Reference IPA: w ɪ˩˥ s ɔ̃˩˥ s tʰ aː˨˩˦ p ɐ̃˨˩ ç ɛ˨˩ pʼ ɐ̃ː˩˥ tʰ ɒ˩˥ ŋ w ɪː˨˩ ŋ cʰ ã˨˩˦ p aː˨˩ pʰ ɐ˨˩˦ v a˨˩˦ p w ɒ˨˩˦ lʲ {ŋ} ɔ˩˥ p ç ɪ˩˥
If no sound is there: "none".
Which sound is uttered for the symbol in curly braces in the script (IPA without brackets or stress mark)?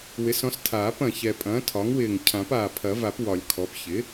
kʰ